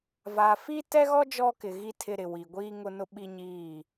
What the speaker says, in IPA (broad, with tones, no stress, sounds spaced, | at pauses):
v aː˨ f i˦ t ɛ˦ ɣ ɔ˦ d͡ʒ ɔ˦ k ɪ˨ ɣ i˦ tʰ ɪ˦ ɾ ɪ˨ w i˨ ɡʷ iː˦ ŋ ʊ˦ n ʊ˦ ɓ i˦ ɲ iː˦˨